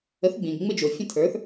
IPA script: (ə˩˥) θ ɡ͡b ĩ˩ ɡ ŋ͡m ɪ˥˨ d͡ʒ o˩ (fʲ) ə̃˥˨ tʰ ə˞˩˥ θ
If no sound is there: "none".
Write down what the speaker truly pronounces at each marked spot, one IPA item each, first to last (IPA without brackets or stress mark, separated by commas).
ə˩˥, fʲ